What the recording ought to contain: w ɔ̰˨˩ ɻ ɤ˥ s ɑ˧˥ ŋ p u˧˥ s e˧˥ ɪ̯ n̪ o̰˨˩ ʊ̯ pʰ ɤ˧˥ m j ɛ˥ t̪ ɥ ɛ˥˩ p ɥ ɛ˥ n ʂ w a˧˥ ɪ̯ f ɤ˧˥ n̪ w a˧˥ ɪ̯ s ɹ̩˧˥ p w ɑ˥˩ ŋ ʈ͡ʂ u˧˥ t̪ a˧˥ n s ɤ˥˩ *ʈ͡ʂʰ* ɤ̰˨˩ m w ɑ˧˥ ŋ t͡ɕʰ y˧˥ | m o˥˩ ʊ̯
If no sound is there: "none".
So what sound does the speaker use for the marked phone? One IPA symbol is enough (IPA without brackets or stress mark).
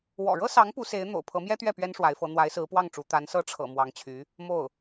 ʈ͡ʂʰ